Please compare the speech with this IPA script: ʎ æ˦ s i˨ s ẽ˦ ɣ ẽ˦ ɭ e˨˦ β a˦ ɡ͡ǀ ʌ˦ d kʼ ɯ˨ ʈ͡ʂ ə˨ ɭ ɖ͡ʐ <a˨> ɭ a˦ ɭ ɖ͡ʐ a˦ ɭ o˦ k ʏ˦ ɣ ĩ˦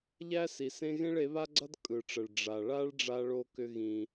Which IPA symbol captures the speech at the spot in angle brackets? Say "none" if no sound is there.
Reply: a˨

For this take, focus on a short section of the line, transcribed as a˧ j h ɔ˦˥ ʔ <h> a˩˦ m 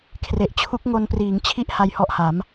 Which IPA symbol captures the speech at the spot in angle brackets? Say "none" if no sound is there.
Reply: h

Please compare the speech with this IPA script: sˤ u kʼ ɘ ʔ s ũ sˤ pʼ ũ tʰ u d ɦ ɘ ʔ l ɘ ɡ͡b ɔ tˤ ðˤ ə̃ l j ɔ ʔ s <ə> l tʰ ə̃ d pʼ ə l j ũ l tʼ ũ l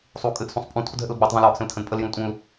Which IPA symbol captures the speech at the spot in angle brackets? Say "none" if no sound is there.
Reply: ə̃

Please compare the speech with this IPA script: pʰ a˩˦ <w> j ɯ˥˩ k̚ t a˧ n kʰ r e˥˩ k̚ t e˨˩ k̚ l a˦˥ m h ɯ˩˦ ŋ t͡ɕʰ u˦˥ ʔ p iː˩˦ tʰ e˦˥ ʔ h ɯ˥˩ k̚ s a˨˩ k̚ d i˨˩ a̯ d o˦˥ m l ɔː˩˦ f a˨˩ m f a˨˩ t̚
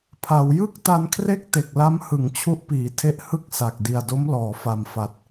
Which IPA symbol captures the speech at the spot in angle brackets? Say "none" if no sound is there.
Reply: w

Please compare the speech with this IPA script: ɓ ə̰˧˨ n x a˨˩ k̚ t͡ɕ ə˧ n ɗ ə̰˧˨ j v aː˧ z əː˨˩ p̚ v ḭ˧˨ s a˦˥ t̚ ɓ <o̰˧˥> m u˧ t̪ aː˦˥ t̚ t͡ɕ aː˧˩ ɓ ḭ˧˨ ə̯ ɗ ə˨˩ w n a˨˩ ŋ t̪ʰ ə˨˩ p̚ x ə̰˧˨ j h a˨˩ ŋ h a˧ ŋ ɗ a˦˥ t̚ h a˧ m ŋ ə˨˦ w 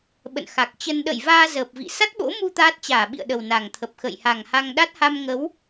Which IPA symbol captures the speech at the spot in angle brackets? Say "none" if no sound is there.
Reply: o̰˧˥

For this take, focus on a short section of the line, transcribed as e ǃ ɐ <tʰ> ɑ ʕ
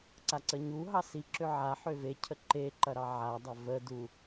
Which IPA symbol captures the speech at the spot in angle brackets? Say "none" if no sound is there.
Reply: ɾ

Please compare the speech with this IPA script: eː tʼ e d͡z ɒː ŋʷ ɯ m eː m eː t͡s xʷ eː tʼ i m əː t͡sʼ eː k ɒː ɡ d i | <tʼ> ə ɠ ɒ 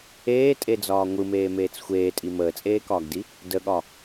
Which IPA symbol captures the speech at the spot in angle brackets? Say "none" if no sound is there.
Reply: d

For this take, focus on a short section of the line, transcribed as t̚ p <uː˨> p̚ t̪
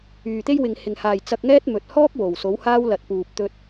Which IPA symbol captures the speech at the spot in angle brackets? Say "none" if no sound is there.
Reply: uː˨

